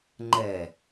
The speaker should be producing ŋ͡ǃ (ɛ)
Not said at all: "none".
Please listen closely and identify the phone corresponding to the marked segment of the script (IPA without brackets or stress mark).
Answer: ɛ